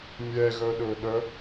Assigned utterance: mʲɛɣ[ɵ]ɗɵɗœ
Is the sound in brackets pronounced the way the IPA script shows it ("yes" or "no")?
no